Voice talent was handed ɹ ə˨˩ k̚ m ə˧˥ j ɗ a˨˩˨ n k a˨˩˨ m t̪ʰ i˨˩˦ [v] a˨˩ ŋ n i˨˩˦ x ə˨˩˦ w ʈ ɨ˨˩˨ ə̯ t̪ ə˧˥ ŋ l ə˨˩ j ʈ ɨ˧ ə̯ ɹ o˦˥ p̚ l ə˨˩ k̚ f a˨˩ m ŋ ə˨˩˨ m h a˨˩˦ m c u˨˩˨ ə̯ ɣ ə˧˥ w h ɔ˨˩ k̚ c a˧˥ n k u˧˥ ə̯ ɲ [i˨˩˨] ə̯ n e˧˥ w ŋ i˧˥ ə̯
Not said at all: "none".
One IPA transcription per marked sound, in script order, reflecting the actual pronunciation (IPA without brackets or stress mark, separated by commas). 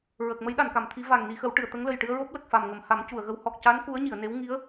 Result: v, i˨˩˨